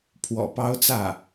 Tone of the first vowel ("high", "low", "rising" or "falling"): low